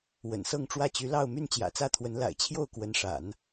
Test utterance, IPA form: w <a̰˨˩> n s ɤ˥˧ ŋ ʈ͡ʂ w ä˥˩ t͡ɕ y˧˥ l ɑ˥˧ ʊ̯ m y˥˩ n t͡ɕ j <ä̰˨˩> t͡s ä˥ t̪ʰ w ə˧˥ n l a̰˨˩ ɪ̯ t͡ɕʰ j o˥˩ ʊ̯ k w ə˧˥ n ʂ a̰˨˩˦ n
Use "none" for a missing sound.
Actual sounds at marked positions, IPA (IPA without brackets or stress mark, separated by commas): ə̰˨˩, ä̰˨˩